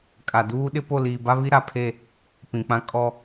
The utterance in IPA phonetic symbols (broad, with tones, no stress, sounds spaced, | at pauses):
kʼ a˨ d uː˦ ɗ ɪ˦ p o˦˨ l iː˨ b a˦ β i˦ ɾ a˨ pʰ e˦˨ | p ĩ˨ k͡p ã˦ kʼ ɔ˦